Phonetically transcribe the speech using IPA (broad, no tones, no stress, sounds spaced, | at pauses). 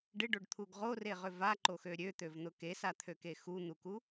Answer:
ɖ ɪ ɖ o ɖ t̪ʰ u ɡ ʁ o r e ʁ ʏ v a ǃ o x ø ɾʲ ø t̪ ø v n̪ ʊ k e s a t̪ʰ ø k e x u n̪ u k u